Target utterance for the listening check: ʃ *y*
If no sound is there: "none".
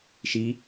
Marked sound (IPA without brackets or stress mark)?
i